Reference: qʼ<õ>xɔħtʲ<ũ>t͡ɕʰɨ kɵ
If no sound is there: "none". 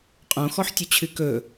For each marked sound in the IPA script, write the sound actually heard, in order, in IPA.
õ, u

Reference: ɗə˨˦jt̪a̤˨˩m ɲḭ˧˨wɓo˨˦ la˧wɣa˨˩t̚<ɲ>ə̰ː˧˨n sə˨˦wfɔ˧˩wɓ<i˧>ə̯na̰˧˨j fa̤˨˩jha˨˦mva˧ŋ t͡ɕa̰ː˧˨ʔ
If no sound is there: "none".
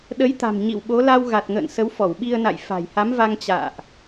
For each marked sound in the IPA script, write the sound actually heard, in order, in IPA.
ŋ, i˧

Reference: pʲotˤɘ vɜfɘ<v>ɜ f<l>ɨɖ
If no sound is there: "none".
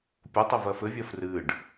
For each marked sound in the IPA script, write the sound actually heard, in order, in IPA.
vʲ, r

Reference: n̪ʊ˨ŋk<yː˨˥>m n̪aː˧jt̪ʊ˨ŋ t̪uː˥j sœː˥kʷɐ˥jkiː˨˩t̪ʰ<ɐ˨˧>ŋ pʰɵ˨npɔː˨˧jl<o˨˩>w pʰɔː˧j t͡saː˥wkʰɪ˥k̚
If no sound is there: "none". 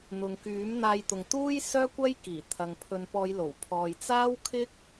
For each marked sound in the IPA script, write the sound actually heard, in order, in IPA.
yː˨˥, ɐ˨, o˨˩

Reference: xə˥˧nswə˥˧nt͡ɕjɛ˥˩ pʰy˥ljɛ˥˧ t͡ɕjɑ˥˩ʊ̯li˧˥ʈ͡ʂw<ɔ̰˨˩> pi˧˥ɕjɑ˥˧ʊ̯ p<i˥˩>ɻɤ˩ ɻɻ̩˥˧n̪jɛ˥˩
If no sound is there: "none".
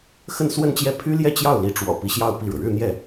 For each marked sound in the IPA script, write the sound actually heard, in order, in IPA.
ɔ̰˨˩, i˥˩

